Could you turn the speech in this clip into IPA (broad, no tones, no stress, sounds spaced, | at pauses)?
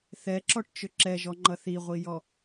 θ ɛ ǁ ɔ ʈ t͡ʃ ʏ ǁ ɛ ʒ ɔ ŋ͡ǃ ʌ θ i ʁʷ i j ɔ